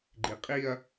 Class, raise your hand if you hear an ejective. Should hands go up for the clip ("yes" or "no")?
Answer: yes